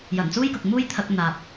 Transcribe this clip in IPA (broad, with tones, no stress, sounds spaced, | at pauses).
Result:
j ɐ˨˩ n t͡s uː˥ j k ʊ˨ k̚ m uː˥ j t̪ʰ ɐ˧ k̚ n̪ aː˨ p̚